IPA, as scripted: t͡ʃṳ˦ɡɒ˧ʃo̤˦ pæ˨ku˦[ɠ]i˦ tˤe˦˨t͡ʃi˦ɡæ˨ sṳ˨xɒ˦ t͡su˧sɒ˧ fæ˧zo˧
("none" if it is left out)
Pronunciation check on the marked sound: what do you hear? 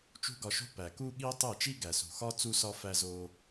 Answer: ɠ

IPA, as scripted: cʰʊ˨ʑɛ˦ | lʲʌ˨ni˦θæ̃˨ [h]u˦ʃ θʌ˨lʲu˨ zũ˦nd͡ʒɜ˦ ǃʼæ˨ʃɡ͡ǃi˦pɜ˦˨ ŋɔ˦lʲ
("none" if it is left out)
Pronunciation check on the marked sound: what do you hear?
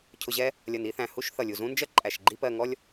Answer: h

